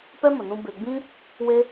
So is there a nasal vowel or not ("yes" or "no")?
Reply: yes